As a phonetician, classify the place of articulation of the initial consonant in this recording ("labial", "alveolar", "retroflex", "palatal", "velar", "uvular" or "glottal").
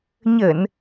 palatal